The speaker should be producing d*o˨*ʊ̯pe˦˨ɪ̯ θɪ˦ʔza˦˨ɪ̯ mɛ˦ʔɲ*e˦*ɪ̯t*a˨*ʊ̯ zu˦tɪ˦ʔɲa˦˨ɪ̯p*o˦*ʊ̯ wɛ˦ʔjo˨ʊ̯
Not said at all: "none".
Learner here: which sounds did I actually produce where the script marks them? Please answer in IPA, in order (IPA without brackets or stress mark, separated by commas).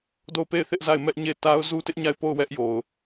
o˦˨, e˦˨, a˦, o˦˨